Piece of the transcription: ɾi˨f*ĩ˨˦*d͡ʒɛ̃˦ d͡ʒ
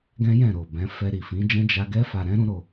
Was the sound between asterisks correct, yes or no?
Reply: yes